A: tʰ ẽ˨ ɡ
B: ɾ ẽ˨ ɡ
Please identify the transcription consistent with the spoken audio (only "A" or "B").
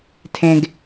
A